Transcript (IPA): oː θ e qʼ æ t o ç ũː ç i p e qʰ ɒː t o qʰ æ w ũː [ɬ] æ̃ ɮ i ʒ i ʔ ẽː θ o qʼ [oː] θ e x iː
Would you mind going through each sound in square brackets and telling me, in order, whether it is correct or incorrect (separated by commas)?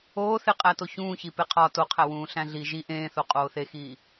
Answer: correct, correct